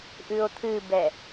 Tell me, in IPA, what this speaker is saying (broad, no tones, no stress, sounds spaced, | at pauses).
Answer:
ʔ ʉ o̯ t̪ʰ ɨ b ɛ